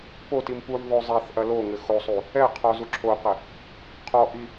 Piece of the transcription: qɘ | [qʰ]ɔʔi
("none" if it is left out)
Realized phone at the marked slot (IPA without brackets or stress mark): qʰ